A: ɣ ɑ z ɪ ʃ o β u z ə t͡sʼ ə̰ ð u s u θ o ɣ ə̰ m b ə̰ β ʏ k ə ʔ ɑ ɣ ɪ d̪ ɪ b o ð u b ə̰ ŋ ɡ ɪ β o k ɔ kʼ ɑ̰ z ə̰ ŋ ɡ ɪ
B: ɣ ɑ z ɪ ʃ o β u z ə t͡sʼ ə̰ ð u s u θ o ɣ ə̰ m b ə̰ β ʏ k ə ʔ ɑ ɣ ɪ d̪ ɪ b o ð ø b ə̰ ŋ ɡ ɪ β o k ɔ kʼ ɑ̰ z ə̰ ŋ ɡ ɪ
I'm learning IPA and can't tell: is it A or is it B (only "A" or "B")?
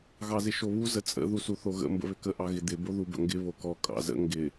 A